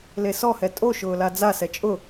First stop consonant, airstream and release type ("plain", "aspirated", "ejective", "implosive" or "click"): ejective